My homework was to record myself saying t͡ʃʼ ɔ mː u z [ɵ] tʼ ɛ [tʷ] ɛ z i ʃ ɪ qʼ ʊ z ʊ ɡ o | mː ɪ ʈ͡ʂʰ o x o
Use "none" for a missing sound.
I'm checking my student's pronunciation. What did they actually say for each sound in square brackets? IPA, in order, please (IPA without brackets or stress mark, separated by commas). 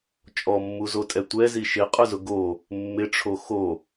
o, tʷ